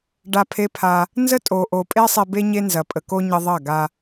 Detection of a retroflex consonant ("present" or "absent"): present